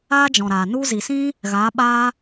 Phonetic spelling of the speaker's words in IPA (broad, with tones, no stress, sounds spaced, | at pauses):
aː˦ d͡ʒ ɔ̃˨ ɾ aː˨ n u˧ z i˨ s ĩ˦ | ɣ aː˨˦ ɓ aː˦